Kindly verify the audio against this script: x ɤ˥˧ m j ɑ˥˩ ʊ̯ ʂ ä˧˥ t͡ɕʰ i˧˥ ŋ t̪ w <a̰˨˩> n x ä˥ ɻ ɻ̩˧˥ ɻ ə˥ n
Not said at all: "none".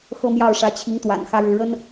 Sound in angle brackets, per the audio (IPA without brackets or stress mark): a̰˨˩